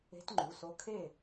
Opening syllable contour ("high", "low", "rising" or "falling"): rising